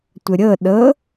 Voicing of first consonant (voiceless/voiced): voiceless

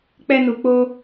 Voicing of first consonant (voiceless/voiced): voiceless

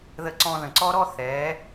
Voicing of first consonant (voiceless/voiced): voiced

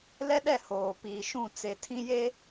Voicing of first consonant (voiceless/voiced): voiced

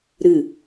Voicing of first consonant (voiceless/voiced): voiced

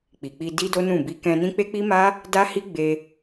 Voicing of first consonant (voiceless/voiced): voiceless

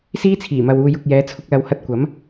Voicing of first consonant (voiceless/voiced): voiceless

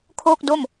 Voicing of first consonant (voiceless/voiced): voiceless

